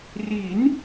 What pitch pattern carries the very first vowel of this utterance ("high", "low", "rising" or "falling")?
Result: rising